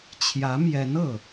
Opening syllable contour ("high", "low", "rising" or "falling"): rising